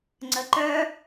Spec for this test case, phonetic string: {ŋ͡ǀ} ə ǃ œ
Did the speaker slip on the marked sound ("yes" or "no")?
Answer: no